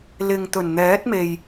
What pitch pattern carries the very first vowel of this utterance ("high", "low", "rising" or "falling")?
low